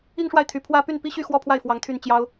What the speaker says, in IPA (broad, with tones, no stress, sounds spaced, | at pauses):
i˥˧ ŋ ʂ w a˥˩ ɪ̯ t̪ʰ y˨˩ pʰ w ä˥ p y˥˩ n p i˥ ɕ y˥˧ x w ɔ˥˧ pʰ w a˥˩ ɪ̯ f w ɑ˧˥ ŋ t̪ʰ y˥˩ n t͡ɕ j ɑ˥ ʊ̯